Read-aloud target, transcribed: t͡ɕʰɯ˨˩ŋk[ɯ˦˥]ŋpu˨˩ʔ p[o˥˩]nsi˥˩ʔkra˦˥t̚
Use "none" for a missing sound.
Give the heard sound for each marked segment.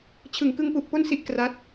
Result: ɯ˧, o˥˩

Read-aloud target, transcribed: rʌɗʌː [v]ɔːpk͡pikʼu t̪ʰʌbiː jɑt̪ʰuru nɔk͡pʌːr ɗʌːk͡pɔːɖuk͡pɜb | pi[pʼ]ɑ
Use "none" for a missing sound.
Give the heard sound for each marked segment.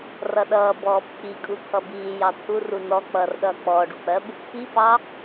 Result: b, p

